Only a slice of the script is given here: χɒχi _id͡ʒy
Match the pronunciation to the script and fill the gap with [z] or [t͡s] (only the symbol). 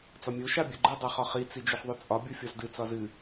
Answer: t͡s